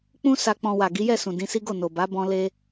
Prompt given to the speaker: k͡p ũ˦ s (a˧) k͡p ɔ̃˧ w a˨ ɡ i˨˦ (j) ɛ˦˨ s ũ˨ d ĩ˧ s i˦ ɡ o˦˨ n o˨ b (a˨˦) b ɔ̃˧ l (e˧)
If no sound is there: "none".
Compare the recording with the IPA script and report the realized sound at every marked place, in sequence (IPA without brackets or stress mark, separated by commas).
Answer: a˧, j, a˨˦, e˧